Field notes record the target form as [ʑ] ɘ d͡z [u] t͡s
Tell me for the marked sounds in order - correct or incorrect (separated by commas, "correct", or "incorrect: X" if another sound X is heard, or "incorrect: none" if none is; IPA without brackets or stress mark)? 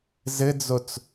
incorrect: z, incorrect: o